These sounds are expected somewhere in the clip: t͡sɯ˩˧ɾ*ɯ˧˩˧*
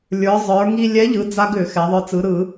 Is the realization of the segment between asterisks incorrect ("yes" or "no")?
no